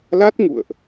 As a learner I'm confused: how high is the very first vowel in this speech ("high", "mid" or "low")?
low